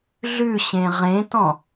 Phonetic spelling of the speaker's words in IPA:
ɮ ʉ ɕ ẽ ʁ ẽ t ɔ̃

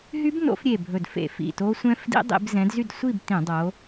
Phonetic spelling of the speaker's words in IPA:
ɦ y˦˥ b n o̰˨˦ f ɾʲ e˧˩ bʱ ɵ˧˩ d f ḛ˧˩˧ f ḭ˩˧˩ t o˦˥ sʷ ɛ̃˦˥ f d ḭ˦˥ dˤ ḭ˨˦ b z ɛ̃˨˦ d z y˥˨ d sʷ i˥˨ b t ĩ˧˩˧ dˤ o˨˦

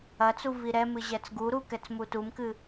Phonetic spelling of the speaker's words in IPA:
ɐ t͡s u v i ɾ ɛ m ɨ ʑ ɛ t͡s ɡ u ɾ u k ɛ t͡s m u t u m k ɨ

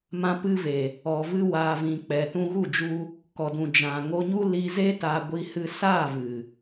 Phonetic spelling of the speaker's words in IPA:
m ã˧ p ɨ˧ v e˨ | ɔ˨ v ɨ˧ w aː˨ v ĩ˨ k͡p ɛ˨ t ũ˧ ɣ u˦˨ d͡ʒ u˧ | k ɔ˨ d ũ˨ d͡ʒ ã˨ ŋ o˧ ɲ u˦ l i˧ z e˦ t a˧ ɡʷ i˧ h ɨ˧ s aː˦˨ v ɨ˨

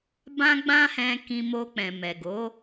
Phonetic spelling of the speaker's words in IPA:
b ã˦ ɡ͡b ã˦ h ɛ̃˧ k ĩ˧ m o˧ k͡p ɛ̃˨ m ɛ˨ ɡ o˨˦

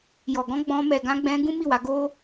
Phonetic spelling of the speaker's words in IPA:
j ɔ˨ ɡ ɔ̃˧ ɡ͡b ɔ̃˧ m ɛ˨ ɡ ã˧ ɡ͡b ɛ̃˧ ɡ ũ˦ m i˦˨ w a˧ ɡ o˦

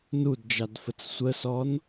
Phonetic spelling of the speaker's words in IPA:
n u d d͡ʒ ɑ d f ə t͡s sʷ ə s ɔ n

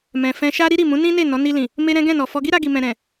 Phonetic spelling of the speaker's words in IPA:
m ɛ̃˨ f ɛ̃˧ ʃ a˦ ɾ i˦ ɾ i˦˨ m ũ˨˦ n ĩ˦ n e˦˨ n ɔ˨˦ n i˧ l ĩ˨ | m e˦ ɾ ɛ̃˦ ɡ ɛ̃˦˨ n ɔ˨ f ɔ˧ ɡ i˦ ɾ a˧ ɡ i˨ m ɛ̃˨ ɾ ɛ̃˨

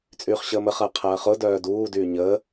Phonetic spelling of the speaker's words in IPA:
t͡sʼ yː χ ɕ əː m ə χ ɐː qʰ ɐː χ ʊ d œː d uː d yː ɲ əː

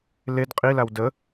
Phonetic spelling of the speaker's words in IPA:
l e d qʼ i l a w d ə

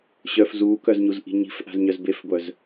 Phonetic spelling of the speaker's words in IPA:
ɕ œ f z uː k œ z ɲ u z ʔ i̤ ɲ i̤ f ʔ a̤ z ɲ œ z b e f ɡʷ œ z

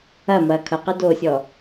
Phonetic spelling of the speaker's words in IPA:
ɐ m ɐː kʰ ʌ q ɯ d oː sʲ ɔ

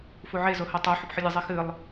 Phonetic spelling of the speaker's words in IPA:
f u ʕ e z o h ɐ tˤ o ħ u p ħ ɨ lʲ ɨ zˤ e x ɨ lˠ

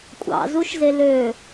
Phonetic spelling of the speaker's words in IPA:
kʷʼ ɑ̰ z u ʃ z e l ø

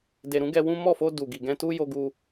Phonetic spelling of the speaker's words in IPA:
d e˨ ɾ ũ˨˦ ɡ ɛ˧ w ũ˦ m ɔ˦˨ f o˧ d u˨ ɡ i˨ ɡ ɛ̃˧ t u˦ j o˧ ɡ u˧

